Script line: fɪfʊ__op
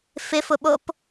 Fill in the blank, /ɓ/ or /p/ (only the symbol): ɓ